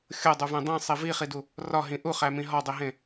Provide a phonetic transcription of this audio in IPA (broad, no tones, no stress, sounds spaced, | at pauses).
xʲ o dˤ u v ẽ dˤ ĩ sˤ i v i χ i d u | r ɒ ɦ ĩ ʔ u χ æ m ĩ ɦ ɒ dˤ i ɦ ẽ